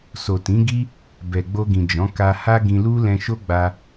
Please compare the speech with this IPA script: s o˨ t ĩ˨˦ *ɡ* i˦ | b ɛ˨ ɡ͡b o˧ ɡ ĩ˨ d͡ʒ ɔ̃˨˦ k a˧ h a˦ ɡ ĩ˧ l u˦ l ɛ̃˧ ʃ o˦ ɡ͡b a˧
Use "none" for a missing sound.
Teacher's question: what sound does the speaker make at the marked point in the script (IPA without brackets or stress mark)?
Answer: ɡ